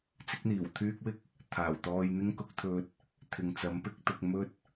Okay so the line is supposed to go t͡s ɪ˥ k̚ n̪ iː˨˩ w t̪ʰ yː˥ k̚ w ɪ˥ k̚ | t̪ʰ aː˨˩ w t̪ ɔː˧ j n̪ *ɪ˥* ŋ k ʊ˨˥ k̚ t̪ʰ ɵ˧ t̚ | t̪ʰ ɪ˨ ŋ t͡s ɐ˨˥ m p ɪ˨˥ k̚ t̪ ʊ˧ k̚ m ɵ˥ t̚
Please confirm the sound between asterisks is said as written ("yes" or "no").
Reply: yes